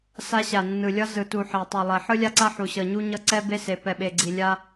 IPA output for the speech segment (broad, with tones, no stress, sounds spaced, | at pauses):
s a˦ ɕ a˨ nː ɯ˨ lʲ ʌ˦ z ɯ˨ t u˨ ħ ɛ˨ tˤ i˨ lˠ ɛ˨ ħ ɯ˦ lʲ a˦ ǀ a˦ ħ u˨ ɕ ʌ˨ ɲ u˦ ɲ ʌ˦ ǀ ɛ˦ b e˦ s e˨ p ɛ˨ ɓ e˨ ɡ͡ǀ i˨ lʲ a˦